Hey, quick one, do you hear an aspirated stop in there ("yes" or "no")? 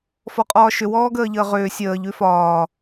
no